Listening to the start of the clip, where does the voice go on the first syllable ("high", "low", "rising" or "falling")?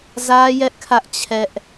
high